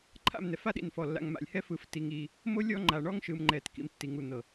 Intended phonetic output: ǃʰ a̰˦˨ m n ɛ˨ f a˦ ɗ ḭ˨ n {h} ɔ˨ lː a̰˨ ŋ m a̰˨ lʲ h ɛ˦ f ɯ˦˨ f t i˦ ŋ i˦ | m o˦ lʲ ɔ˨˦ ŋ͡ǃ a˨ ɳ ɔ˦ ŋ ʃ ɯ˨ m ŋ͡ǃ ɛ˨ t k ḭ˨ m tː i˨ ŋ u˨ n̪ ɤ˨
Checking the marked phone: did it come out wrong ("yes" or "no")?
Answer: yes